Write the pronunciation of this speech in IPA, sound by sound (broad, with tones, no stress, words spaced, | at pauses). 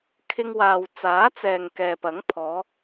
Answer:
kʰɪ˥ŋwaː˧w t͡saː˨˥t͡sɛː˨ŋ kɛː˨pɐ˨˥ŋpʰɔː˨˧